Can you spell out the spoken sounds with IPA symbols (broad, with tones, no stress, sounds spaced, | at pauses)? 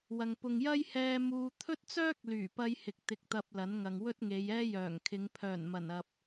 w ɐ˨ ŋ p ʊ˨ ŋ j ɐ˥ j h ɛː˧ m uː˧ t̪ʰ ɵ˥ t̚ t͡s œː˥ k̚ l yː˨˩ p ɐ˧ j h ɪ˨ k̚ t̪ ɪ˧ k̚ t̪ ɐ˧ p̚ l ɐ˨˥ n ŋ ɐ˨ ŋ w ɵ˥ t̚ ŋ e˨˧ j ɛː˥ j œː˨˩ ŋ kʰ ɪ˨˧ ŋ pʰ œː˨˩ n m ɐ˨˩ n ɐ˨ p̚